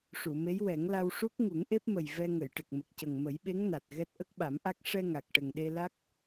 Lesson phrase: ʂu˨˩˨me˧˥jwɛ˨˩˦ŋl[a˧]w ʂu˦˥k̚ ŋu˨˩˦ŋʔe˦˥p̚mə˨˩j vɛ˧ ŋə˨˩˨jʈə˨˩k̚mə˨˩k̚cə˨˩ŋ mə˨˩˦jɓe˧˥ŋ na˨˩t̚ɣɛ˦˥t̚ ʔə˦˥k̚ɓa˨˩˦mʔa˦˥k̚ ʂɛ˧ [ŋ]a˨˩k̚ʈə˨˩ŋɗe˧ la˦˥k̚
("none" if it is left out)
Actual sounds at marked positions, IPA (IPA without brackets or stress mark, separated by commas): a˧, ŋ